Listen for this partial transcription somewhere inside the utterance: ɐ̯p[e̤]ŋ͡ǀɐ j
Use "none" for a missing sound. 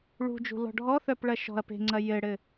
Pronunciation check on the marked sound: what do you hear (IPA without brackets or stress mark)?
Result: e̤